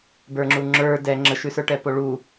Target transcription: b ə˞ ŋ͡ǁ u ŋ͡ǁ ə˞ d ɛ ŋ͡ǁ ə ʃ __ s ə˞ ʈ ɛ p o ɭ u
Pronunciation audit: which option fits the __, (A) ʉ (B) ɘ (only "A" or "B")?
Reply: A